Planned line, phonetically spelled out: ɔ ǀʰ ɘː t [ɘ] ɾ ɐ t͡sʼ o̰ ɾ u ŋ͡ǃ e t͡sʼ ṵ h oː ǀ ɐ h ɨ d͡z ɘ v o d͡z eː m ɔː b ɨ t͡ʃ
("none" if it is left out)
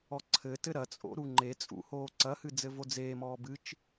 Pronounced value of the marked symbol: ɘ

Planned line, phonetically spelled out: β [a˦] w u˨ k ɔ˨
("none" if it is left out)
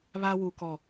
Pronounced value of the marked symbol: a˦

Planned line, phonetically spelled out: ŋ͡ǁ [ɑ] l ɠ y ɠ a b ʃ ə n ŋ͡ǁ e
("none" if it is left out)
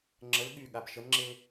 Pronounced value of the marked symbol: ə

